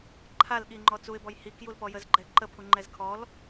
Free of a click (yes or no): no